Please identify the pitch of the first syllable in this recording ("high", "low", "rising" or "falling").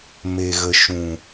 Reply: low